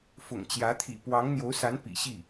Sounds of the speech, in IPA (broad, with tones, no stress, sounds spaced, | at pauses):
f ʊ̰˨˩ ŋ t͡ɕ j ä˧˥ t̪ʰ ḭ˨˩ p w ɑ˧˥ ŋ n̪ j o˧˥ ʊ̯ s a˧˥ n p ḭ˨˩ ɕ i˥˩